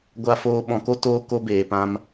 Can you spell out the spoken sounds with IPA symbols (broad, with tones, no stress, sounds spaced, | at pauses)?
ɡʷ a˧ f oː˧ ɓ ɔ̃˨ k o˧ t oː˧ k o˧ b eː˨ p ã˧ m